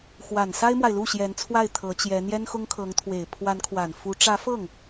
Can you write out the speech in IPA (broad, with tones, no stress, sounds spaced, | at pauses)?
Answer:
x w a˨˩ n s a˥ ɪ̯ m w a˨ ɪ̯ l u˥˩ ɕ j ɛ˧˥ n t͡sʰ w a˥˩ ɪ̯ t̪ʰ ɤ˧˥ t͡ɕ j ɛ˧˥ n̪ j ɛ˥ n x ʊ˥ ŋ kʰ ɤ˧˥ ŋ t̪ʰ w e˨˩ ɪ̯ pʰ w a˧˥ n kʰ w a˨˩ n f u˧˥ ʈ͡ʂ ä˧˥ f ɤ˥˩ ŋ